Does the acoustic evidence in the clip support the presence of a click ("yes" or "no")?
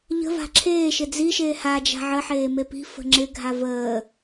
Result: yes